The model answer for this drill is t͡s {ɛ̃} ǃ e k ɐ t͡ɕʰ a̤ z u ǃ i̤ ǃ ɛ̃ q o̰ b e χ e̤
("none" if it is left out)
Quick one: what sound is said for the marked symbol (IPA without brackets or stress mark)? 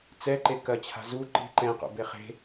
ɛ